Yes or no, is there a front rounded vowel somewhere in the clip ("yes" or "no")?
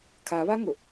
no